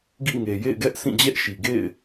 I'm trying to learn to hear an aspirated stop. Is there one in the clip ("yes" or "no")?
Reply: no